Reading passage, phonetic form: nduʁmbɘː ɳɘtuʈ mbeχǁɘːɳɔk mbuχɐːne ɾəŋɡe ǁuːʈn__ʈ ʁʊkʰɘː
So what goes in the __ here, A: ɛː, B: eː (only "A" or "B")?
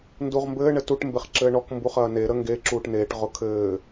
B